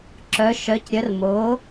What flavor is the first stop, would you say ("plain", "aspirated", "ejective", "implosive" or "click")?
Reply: click